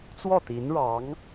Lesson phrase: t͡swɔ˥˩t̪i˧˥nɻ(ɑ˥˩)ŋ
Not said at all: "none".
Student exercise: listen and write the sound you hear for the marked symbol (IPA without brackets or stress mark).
ɑ˧˥